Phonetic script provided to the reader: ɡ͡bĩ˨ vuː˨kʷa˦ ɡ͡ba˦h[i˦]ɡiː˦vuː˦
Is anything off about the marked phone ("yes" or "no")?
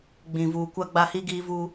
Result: no